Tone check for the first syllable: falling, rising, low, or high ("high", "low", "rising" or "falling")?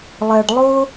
low